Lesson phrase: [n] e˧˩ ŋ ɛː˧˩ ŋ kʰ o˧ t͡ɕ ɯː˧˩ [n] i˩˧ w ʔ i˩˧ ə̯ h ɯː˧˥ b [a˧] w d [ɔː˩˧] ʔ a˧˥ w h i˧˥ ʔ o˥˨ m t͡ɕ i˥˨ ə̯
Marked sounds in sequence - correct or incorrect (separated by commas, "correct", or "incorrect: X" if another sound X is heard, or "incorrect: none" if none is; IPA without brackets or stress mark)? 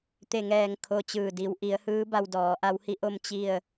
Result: incorrect: t̪, incorrect: d, correct, correct